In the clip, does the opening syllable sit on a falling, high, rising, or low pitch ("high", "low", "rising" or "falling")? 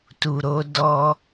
low